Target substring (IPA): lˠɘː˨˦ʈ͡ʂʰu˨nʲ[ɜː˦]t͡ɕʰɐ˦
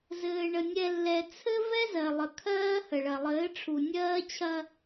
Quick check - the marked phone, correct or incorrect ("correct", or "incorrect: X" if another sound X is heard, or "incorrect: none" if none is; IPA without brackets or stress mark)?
correct